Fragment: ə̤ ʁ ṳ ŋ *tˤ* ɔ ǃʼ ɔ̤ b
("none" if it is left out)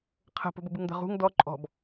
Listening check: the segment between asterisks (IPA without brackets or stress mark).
d